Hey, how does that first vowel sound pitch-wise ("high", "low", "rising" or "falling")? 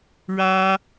high